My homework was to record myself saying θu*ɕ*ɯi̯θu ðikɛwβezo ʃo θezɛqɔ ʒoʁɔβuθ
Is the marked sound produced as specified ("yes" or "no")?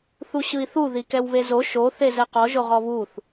yes